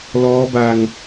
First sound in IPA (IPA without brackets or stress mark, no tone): l